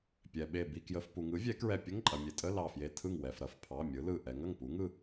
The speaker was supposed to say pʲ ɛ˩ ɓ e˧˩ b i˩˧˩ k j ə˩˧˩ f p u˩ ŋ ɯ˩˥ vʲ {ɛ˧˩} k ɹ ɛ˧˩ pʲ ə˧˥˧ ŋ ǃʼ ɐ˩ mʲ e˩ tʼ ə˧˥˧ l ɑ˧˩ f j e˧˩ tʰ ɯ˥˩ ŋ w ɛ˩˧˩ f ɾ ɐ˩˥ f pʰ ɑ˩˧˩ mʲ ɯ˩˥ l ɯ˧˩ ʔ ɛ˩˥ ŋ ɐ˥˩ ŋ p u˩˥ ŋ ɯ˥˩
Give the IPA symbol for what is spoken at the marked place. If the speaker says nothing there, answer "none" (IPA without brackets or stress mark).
ɛ˩˥